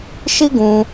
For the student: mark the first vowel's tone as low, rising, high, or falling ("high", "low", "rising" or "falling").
high